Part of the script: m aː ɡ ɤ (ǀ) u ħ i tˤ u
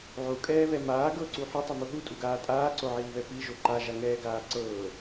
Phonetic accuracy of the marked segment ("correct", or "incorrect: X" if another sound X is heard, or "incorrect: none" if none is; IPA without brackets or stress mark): correct